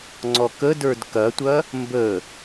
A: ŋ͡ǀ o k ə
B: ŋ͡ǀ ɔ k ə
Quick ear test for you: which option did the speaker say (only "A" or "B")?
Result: B